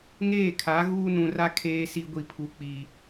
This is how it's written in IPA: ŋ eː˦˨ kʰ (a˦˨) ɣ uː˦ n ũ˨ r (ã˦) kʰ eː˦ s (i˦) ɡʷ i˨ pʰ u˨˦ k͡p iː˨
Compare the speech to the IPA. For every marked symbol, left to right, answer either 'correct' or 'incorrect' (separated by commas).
incorrect, incorrect, correct